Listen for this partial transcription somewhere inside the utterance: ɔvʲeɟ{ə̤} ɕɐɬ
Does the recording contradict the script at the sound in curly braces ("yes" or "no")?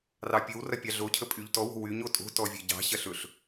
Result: yes